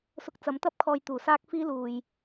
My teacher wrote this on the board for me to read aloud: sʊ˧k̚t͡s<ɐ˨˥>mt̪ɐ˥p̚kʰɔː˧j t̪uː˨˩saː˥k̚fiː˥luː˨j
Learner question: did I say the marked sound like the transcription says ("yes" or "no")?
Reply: yes